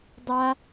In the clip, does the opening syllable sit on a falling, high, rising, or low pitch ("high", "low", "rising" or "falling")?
high